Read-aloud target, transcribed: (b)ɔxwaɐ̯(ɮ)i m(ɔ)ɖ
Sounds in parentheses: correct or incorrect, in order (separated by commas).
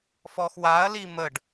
incorrect, incorrect, incorrect